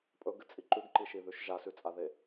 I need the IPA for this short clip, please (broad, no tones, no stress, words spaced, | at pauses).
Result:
pʼɵɡɨt͡sʼi ǃʉɡǃiʃiðʉʃ ʒasʉt͡sʼaðe